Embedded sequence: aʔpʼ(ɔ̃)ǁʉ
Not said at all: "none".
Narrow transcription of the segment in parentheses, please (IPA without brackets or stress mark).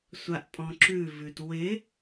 ɔ̃